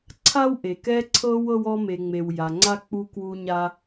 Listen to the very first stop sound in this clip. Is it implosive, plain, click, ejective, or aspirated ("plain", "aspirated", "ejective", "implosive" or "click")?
click